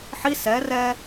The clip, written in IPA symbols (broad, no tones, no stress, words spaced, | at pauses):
ħi sɛ rɛ